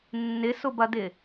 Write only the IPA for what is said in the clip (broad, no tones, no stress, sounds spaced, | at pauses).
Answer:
nː ɪ s ʊ b ɐ d ɪ